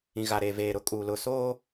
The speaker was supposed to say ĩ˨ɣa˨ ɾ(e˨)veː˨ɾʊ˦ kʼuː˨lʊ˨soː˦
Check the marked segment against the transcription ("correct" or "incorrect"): correct